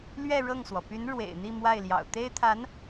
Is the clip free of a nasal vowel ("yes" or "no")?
yes